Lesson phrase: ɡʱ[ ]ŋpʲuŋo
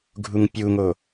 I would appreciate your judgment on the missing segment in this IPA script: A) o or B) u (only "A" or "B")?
B